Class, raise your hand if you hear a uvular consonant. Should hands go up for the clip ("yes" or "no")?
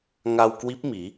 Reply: no